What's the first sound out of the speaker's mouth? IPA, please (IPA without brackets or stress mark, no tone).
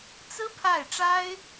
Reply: t͡s